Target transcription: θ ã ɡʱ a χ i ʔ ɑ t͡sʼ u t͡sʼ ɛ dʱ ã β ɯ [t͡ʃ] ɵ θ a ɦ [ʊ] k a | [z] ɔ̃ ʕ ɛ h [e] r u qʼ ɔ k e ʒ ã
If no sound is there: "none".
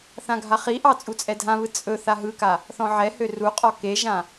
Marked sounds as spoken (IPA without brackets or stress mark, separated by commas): t͡sʼ, ɯ, θ, ø